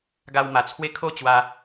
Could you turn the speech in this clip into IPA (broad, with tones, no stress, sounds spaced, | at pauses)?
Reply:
ɡ a˧ w m a˨˩ t͡sʰ w e˦ kʰ o˥˧ t͡ɕ w a˧